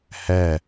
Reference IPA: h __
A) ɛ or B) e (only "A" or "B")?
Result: A